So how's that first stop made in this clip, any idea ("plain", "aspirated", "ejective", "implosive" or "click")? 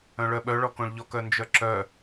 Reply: implosive